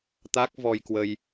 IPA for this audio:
t̪ a˦˥ k̚ v ɔ˧ j k w ə˧ j

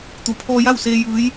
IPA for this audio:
t̪ u˧˩ pʰ ɔː˧ j a˥˨ w s eː˧ j ɯː˧˥ j

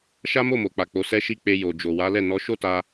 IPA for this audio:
ʃ a˦ m o˦˨ m o˨ k͡p a˨ k͡p o˨˦ s ɛ˦ ʃ i˦ k͡p e˧ j o˨ d͡ʒ o˨ w a˨˦ l ɛ˦˨ n ɔ˨˦ ʃ o˦ t a˧

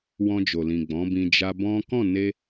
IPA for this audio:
w ɔ̃˧ d͡ʒ o˨ l ĩ˨ ɡ͡b ɔ̃˨˦ b ĩ˧ d͡ʒ a˧ b ɔ̃˦ k ɔ̃˦˨ n e˧

